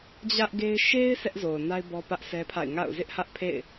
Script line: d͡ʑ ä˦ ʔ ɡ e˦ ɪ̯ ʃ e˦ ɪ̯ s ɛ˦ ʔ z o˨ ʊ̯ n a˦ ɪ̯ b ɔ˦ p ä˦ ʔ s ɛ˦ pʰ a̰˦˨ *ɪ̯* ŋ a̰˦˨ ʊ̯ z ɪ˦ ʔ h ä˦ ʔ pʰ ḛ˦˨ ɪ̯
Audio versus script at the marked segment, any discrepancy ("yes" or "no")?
no